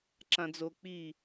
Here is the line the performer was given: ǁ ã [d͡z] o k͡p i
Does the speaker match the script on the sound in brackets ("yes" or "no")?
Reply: yes